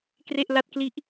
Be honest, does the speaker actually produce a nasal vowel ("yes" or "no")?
no